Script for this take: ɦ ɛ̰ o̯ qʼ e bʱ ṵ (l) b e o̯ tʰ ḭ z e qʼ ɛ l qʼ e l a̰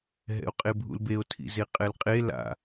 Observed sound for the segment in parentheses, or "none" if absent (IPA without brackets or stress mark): l